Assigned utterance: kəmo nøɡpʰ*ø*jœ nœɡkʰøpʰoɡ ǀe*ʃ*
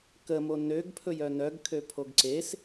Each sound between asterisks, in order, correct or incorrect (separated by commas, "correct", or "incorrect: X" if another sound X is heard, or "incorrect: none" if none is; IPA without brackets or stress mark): incorrect: ɵ, incorrect: s